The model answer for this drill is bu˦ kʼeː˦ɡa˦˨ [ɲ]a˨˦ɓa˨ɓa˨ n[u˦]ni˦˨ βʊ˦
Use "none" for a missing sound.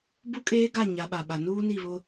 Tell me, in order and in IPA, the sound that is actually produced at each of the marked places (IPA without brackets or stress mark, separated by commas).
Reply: ɲ, uː˦